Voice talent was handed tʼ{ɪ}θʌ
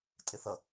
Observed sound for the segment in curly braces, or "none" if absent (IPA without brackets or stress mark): ɪ